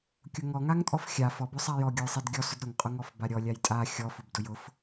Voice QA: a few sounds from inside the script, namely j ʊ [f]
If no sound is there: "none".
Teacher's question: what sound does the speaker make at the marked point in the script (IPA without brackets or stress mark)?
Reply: f